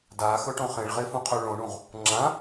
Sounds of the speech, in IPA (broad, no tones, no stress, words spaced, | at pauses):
daxɵʈõχ ẽɭʁefũqʰœ ɭõɳũʁ | ŋ͡ǁã